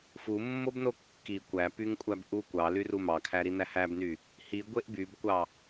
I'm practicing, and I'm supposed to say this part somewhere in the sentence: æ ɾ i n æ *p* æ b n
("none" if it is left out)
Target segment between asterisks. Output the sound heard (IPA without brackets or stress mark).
h